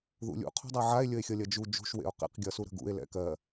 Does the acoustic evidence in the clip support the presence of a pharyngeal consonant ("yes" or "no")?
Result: yes